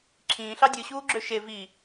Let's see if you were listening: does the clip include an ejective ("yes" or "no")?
no